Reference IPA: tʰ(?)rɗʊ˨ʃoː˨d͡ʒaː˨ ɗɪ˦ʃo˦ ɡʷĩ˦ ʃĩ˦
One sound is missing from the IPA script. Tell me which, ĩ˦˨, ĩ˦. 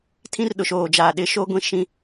ĩ˦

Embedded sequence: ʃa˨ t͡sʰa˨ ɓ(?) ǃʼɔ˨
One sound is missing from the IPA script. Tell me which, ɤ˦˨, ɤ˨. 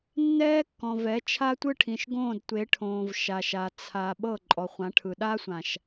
ɤ˦˨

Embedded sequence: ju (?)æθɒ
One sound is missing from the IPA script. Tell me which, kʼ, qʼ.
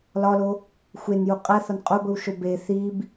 qʼ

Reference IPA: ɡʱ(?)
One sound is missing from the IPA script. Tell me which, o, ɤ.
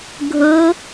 ɤ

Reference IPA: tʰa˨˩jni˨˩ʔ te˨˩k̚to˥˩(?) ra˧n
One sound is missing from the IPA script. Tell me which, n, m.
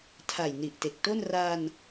n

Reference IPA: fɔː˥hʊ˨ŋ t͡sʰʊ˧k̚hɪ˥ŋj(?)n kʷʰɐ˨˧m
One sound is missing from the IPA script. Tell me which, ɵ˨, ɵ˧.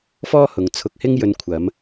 ɵ˧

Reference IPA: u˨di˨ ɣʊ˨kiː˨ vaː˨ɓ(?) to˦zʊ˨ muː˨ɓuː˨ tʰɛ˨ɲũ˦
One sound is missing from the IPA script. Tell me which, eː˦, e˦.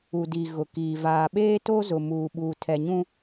eː˦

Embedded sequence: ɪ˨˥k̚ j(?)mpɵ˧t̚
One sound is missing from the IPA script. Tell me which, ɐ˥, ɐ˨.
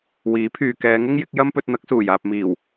ɐ˥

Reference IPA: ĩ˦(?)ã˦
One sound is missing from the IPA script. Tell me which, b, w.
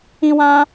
w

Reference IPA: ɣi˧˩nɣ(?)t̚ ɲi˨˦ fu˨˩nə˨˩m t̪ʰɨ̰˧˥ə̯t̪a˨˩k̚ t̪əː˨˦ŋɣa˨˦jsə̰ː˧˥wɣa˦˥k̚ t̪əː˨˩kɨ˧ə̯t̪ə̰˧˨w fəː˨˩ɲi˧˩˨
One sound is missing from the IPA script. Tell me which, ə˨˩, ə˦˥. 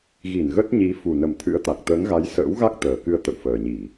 ə˦˥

